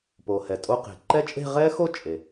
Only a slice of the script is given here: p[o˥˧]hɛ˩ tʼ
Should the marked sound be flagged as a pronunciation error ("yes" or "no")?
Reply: yes